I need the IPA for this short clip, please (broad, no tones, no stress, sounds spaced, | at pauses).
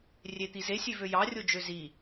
rʲ e t̪ i z e sʲ ø v ø j ɑ rʲ o d͡ʒ ø z i